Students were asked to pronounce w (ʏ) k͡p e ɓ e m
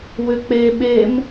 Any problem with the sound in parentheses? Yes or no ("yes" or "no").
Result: no